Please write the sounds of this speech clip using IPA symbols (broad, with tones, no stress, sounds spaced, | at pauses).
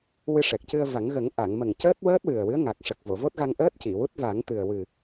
w ɨ˧ ʂ ɛ˨˩ k̚ c ɨ˧ ə̯ v a˨˩˦ ŋ ɣ ə˨˩˦ ŋ ʔ a˨˩˨ ŋ m ə˨˩ ŋ c əː˦˥ t̚ w əː˦˥ t̚ w ɨ˨˩ ə̯ w ɨ˧˥ ə̯ ŋ a˨˩ k̚ ʂ ə˨˩ k̚ v o˨˩˨ v o˦˥ t̚ ɣ a˧ ŋ ʔ əː˦˥ t̚ c i˨˩˨ w u˦˥ t̚ v a˨˩˦ ŋ t̪ ɨ˨˩ ə̯ w ɨ˨˩